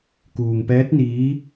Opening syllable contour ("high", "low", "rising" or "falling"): low